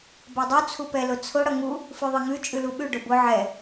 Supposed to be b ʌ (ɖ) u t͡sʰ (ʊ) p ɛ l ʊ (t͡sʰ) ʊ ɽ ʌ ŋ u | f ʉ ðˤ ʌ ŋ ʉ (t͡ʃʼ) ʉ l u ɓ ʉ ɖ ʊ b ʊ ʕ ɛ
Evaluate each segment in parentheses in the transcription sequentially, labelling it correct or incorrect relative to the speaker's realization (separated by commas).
incorrect, incorrect, correct, correct